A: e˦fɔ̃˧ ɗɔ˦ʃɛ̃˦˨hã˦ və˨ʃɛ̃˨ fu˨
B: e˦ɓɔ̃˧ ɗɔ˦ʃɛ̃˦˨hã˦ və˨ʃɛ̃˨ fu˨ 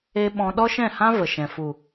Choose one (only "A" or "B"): B